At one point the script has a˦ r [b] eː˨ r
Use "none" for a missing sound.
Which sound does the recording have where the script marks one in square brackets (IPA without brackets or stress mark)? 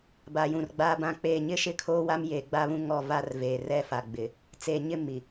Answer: v